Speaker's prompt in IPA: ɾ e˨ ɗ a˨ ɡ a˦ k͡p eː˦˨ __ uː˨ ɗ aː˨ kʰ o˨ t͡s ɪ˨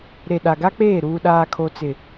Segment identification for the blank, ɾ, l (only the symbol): ɾ